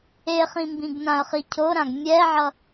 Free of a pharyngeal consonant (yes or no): no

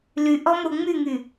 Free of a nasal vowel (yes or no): yes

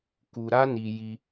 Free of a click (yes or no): yes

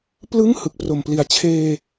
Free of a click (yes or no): yes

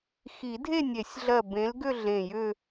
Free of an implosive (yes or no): yes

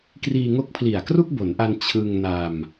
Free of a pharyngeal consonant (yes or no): yes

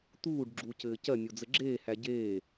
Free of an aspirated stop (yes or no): yes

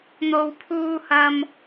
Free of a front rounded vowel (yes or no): yes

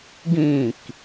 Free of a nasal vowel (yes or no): no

